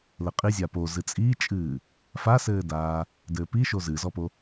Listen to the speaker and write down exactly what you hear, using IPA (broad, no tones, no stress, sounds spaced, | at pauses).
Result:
l ɘ qʼ i zʲ a p o z ɨ t͡sʼ iː t͡ʃʼ ɨː | f a s ɘː d aː | d ɘː p i ʃ o z ɨ z ɔ p o